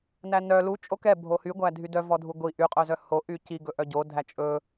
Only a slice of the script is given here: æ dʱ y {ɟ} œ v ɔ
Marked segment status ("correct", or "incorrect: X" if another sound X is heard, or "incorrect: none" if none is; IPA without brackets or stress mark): incorrect: d